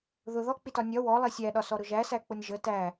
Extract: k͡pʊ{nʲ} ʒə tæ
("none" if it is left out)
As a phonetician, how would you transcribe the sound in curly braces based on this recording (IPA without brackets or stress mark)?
nʲ